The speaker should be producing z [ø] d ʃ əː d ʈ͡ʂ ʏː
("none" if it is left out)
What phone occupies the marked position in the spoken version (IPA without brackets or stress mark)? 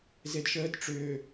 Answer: e